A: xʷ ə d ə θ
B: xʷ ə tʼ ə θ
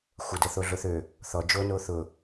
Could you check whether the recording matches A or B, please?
A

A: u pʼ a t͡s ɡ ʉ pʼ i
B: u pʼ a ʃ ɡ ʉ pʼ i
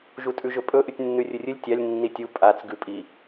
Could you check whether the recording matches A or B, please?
A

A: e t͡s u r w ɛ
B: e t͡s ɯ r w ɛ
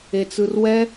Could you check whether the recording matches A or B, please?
B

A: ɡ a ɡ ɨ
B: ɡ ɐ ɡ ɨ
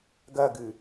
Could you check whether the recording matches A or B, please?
B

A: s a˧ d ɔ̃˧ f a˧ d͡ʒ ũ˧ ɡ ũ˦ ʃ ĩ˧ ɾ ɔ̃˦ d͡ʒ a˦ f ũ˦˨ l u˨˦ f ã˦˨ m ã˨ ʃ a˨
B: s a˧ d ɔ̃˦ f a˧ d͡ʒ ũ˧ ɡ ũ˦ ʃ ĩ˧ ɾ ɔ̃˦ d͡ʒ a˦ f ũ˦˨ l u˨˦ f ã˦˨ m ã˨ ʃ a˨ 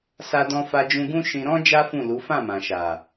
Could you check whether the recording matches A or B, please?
A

